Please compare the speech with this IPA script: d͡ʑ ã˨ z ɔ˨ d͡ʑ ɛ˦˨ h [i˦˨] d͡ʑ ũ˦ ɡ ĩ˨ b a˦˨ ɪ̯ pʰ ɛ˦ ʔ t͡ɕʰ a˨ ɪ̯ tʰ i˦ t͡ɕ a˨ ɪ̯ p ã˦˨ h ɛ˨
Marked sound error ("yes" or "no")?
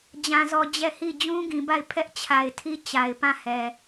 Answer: no